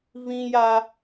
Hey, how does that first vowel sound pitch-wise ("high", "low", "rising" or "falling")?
high